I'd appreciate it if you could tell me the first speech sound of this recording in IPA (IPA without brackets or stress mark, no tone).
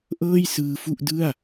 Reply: ʔ